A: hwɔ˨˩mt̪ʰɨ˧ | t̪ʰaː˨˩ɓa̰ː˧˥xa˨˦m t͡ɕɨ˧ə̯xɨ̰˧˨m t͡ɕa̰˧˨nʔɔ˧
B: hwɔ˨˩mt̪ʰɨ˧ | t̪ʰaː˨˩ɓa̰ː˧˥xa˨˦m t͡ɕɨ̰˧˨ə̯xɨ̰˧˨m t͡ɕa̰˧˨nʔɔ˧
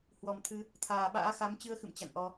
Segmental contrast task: A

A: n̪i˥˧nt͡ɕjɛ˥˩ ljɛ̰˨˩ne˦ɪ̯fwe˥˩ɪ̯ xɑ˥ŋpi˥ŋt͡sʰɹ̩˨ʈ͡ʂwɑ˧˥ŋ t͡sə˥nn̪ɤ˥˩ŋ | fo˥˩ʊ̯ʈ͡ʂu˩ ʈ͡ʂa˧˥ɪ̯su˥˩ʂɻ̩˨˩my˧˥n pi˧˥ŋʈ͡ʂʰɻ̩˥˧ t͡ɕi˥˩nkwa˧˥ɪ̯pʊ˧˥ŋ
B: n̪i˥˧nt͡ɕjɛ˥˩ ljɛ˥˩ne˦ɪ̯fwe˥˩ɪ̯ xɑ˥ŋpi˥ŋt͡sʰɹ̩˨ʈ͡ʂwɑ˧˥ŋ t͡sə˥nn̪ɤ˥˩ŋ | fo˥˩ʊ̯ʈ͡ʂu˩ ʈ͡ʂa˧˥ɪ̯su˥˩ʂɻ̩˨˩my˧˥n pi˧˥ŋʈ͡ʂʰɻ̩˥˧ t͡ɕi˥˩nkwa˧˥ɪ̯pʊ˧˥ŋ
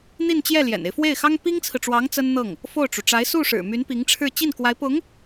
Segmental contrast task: A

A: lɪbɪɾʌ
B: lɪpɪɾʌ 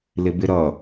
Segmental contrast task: A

